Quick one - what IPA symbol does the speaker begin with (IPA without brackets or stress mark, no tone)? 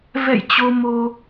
v